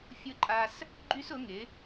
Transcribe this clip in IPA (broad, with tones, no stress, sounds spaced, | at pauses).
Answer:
fʲ ʊ˦ ǃʼ a˦ s | ɡ͡ǃ y˦ s ʊ˨˦ ŋ ɪ˨˦